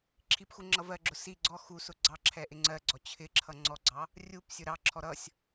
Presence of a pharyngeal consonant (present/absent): absent